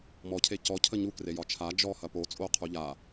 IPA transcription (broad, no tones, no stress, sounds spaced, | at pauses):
m ɔ cʰ e c ɔ cʰ ə ɲ u k r e j ɒ t͡ʃʰ a d͡ʒ ɔ h ɐ p o t͡sʼ o qʰ u ʎ a